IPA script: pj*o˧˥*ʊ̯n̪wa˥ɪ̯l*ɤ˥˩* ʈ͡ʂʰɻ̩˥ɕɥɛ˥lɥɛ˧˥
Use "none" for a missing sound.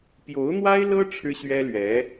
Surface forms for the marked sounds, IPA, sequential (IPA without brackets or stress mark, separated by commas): o˧˥, ɤ˥